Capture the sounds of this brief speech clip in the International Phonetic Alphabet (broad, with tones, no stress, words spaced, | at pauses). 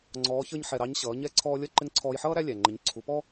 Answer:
ŋ͡ǀɔː˧˥çə˞˥ɲ ħɛ˧ɾɑ˧˥ɲ ɕʌː˩˧ɲɛ˧˥ ǀʰɔː˧lʲʌ˧˥ ǃɪ˧˥ŋǀʰɔː˧jħʌː˥ ɾæ˥lʲæ˩ŋ͡ǃə˩˧ɲ ǀʰu˩˧pɔ˥